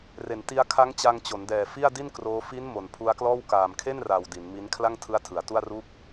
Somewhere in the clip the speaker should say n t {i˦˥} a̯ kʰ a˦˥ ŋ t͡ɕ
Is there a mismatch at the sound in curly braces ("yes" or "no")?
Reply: no